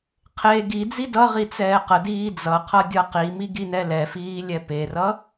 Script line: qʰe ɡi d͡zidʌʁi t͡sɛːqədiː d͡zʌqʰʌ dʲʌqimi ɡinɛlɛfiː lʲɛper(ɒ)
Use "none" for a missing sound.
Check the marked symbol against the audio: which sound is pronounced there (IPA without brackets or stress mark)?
ʌ